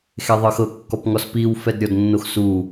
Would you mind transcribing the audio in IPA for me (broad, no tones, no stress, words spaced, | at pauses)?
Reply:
xeðˤɤxɤ kːɔpŋɔspiw fɛdɾʲɔdnːoxsu